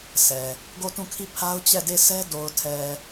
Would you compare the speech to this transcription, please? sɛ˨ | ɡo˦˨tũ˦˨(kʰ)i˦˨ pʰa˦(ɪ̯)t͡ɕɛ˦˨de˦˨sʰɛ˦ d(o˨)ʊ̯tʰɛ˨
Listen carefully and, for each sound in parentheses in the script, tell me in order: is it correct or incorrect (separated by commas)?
correct, incorrect, correct